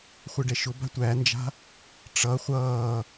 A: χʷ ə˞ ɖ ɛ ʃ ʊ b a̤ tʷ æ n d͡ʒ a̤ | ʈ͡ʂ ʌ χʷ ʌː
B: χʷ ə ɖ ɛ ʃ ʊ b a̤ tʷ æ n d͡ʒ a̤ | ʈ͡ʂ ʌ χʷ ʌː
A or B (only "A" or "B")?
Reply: B